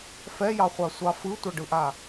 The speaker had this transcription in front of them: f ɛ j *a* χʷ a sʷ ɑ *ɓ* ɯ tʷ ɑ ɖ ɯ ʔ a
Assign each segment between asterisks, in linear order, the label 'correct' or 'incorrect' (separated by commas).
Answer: incorrect, incorrect